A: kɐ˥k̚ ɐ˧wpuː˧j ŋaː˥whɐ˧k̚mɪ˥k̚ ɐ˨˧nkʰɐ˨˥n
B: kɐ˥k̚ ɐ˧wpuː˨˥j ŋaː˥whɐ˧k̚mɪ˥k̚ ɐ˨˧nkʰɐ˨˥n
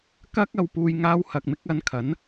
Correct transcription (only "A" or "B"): A